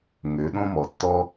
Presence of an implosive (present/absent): present